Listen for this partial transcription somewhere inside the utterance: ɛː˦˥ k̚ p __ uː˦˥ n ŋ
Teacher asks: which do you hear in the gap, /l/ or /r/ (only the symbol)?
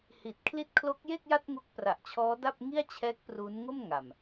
r